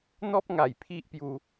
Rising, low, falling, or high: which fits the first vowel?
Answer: high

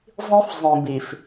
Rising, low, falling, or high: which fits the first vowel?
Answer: high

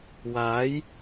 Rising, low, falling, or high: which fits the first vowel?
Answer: rising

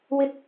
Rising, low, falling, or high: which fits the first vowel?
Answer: high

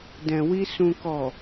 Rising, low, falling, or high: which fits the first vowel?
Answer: low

